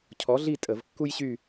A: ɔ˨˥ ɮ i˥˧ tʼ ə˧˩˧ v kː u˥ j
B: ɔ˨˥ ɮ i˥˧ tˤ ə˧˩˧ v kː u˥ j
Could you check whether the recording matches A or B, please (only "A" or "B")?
A